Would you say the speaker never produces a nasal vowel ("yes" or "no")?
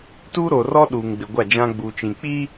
no